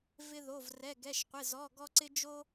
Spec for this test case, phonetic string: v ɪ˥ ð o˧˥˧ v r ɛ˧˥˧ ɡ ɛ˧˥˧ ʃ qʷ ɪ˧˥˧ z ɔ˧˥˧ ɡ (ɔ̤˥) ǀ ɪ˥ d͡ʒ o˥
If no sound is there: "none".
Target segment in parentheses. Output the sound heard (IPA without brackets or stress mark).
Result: ɔ˥